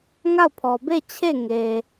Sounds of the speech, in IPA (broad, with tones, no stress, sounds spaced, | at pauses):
ŋ a˦˨ ʊ̯ pʰ ɔ˨ b e˦˨ t͡ɕʰ e˦˨ ŋ e˨